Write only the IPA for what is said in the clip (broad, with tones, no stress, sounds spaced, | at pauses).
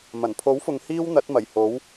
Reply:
m ɐ˨˩ n pʰ o˨˥ w f ʊ˨ ŋ h iː˥ w n̪ ɐ˨˥ t̚ m ɐ˨˩ j h o˨˥ w